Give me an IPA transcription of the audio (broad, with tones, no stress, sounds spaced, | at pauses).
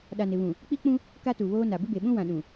ɗ a˨ n ɪ˨ β ũ˨ | k͡p i˦ k͡p ũ˦ | k a˦ t u˨ β oː˦ n a˨ b ɪ˦ b e˨ ɓ ũ˦ w ã˨ ɗ ũ˨